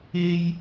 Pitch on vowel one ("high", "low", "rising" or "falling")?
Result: high